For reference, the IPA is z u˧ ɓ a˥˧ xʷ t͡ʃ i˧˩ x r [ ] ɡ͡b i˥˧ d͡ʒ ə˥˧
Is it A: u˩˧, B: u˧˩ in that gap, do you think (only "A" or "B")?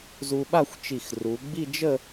A